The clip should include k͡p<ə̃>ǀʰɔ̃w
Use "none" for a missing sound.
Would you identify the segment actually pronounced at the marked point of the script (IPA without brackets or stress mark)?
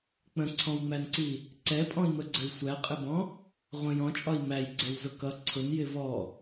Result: ə̃